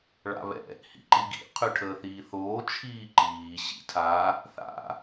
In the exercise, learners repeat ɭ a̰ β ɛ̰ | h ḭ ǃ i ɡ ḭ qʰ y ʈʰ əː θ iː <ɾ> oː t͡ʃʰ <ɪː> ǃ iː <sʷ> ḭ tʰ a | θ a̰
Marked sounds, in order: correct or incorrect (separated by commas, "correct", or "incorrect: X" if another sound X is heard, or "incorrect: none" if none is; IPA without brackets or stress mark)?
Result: incorrect: θ, incorrect: iː, incorrect: ɕ